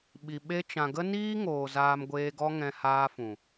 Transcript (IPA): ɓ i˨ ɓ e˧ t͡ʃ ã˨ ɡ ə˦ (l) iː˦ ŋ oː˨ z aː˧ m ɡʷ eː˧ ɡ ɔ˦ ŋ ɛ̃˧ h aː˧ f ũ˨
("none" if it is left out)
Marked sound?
n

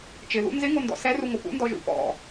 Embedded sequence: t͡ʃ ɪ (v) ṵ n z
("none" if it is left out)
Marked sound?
ð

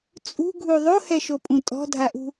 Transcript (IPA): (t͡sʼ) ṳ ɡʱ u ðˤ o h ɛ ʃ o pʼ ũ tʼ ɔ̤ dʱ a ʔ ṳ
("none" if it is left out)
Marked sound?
t͡sʼ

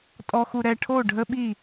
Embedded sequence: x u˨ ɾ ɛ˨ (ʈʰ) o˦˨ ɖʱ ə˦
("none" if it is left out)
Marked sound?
ʈʰ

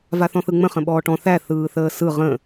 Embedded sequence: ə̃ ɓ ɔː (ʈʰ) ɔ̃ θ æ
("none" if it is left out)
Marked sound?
ʈ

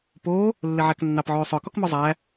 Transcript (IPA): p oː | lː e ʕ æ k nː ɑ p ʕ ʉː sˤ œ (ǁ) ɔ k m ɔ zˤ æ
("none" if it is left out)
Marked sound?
k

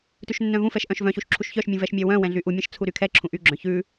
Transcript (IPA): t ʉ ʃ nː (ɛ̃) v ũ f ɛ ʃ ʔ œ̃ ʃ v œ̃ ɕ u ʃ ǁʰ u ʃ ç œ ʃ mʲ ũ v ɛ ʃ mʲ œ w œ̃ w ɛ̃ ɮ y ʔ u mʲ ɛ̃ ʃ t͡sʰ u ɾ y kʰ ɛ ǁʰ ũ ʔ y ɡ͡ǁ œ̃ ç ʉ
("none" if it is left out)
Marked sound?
œ̃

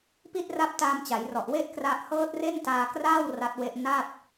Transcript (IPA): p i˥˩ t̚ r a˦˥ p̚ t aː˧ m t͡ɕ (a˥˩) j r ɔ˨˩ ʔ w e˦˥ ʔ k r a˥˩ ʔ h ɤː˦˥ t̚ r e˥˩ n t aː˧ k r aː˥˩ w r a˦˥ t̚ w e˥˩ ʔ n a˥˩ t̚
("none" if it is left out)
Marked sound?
a˩˦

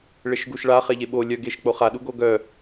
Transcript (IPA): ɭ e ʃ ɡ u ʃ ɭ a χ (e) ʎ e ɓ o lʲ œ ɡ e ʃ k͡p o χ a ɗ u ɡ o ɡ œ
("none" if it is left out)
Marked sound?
e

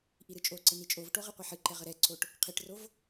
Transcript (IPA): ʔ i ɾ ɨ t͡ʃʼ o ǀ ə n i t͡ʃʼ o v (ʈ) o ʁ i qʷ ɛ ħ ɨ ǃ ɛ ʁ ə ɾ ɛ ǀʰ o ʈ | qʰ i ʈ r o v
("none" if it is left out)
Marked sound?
ʈ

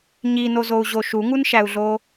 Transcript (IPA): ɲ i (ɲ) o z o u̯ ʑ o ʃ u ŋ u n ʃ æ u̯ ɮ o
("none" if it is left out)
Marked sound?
n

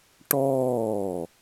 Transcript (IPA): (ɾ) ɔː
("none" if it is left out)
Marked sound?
ʈ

